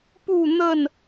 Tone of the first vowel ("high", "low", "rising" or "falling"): falling